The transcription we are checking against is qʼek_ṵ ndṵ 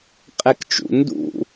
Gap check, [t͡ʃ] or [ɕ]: t͡ʃ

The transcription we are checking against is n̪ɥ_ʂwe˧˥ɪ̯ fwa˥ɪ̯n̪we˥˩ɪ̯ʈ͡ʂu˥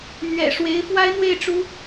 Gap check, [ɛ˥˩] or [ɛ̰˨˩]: ɛ̰˨˩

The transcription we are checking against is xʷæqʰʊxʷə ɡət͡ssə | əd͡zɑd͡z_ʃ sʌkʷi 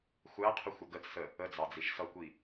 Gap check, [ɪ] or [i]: i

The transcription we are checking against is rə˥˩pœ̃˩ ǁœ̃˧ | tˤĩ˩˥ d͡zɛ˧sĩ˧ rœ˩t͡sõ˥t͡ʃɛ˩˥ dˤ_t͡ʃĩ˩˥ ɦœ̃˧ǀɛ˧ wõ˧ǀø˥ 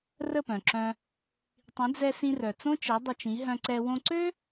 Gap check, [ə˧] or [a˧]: ə˧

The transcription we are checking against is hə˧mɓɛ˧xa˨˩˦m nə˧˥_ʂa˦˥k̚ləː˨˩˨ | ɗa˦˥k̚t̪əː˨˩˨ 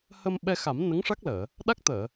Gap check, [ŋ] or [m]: ŋ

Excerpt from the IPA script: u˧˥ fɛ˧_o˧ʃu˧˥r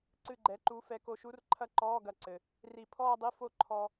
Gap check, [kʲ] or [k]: k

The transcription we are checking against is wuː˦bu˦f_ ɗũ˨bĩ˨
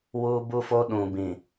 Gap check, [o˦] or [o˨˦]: o˦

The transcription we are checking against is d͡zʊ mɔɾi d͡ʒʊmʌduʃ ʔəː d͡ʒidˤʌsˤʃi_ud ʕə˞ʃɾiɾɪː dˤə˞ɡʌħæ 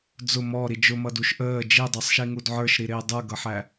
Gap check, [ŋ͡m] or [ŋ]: ŋ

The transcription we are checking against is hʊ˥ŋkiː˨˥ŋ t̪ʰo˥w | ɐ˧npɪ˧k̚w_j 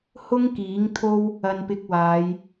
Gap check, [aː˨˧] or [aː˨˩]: aː˨˧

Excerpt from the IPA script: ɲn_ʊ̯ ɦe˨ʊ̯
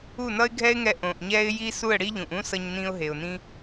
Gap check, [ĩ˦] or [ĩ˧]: ĩ˧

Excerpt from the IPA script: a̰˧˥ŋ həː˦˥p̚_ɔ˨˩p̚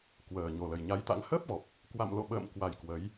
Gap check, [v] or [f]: v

